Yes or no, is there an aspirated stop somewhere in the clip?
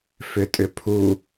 yes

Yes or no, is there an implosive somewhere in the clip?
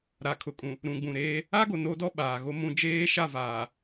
yes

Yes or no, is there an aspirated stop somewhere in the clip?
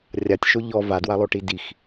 no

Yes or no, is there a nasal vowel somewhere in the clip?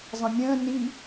yes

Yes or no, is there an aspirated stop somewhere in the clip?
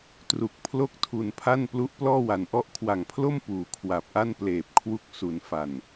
yes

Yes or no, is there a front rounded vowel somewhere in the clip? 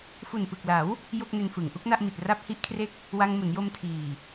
no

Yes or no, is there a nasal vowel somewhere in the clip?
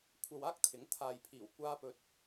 no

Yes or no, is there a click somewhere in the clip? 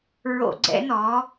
yes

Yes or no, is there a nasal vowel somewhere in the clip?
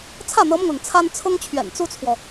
no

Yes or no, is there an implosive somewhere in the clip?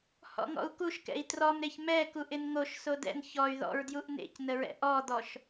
no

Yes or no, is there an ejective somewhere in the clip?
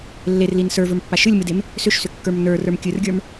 no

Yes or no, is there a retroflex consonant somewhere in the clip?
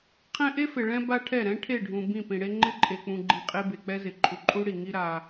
yes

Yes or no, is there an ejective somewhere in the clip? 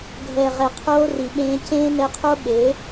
no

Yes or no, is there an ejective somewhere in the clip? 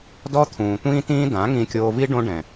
no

